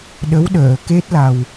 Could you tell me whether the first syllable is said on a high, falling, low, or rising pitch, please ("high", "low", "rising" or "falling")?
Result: rising